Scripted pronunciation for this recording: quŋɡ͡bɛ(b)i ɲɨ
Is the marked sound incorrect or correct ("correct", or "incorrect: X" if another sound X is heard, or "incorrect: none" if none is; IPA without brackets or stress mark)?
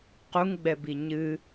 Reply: correct